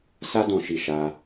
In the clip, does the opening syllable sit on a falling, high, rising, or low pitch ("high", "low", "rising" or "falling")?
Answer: high